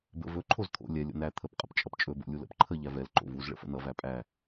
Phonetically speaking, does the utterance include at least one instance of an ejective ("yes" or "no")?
yes